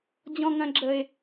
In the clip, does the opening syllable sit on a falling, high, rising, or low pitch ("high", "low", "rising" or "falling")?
low